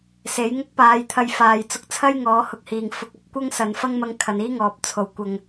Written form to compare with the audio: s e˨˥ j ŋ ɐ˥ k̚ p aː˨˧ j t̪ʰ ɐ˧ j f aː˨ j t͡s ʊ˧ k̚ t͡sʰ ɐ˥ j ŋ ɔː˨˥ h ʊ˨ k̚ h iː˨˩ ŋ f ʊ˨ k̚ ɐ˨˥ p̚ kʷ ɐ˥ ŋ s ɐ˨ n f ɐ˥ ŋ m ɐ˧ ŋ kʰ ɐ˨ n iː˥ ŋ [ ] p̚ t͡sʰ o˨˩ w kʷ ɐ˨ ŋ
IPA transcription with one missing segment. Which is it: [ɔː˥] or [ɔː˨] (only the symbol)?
ɔː˨